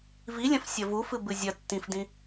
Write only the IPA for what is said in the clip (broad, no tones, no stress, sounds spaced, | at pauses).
v i lʲ ɐ̃ f sʲ ɐ v u f ɨ b ɨ zʲ ɐ tː ĩ f d ĩ